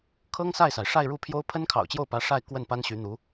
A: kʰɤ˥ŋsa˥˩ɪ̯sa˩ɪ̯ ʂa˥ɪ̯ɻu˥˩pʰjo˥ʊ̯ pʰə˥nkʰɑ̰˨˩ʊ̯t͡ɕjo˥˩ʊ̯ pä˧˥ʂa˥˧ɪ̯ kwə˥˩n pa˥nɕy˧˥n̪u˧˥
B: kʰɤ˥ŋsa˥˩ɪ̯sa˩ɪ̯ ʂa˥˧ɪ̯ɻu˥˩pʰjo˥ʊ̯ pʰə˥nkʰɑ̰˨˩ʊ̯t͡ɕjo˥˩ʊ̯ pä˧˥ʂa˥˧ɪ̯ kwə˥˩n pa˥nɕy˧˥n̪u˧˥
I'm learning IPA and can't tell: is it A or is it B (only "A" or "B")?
B